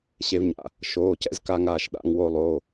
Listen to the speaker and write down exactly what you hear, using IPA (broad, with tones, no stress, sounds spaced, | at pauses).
ɕ e˧ v ɲ a̰˧˩ | ʃ oː˩˧˩ c ɛ̰˧ z k a˧ ŋ aː˧˩ ʃ ɗ a̰˧ ŋ w o˧ lˠ oː˩˧˩